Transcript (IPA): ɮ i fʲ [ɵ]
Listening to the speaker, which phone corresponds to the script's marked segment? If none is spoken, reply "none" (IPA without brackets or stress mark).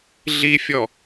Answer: ɔ